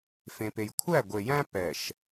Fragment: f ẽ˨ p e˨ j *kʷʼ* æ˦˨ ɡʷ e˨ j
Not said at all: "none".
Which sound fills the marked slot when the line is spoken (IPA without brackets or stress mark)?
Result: kʷʰ